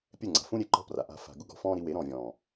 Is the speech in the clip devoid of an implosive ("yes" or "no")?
yes